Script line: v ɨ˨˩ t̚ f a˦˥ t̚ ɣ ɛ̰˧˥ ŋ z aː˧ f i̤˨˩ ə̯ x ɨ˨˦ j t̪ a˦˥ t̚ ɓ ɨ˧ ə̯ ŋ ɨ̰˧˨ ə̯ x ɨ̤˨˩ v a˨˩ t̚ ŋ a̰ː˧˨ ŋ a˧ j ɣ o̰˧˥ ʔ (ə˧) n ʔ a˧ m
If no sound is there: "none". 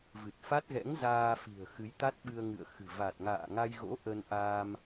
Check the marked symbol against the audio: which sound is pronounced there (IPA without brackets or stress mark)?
ə˧